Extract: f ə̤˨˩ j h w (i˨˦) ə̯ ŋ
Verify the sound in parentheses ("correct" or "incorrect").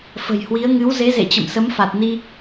correct